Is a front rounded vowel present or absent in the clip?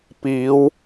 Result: absent